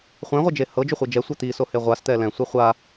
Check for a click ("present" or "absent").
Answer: absent